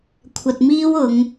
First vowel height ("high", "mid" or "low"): low